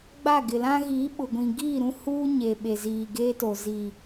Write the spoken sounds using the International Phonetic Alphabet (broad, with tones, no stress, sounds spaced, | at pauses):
ɡ͡b a˦˨ ɡ ɪ˨ l ã˦ ɣ i˨˦ ɓ ʊ˨ ɡʷ ĩ˨ ɡ iː˦˨ ɾ ũ˦ h uː˦ ɲ e˨ ɓ e˨ z iː˨ ɡ eː˦ t o˨ z i˨